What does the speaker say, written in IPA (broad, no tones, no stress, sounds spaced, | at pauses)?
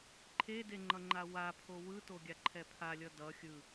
ǃʰ e d e ŋ͡ǃ ʌ ŋ͡ǃ a w a pʰ o w ɯ t o ɡʲ a ǃʰ ɛ pʰ a lʲ ʌ d ʌ xʲ ɯ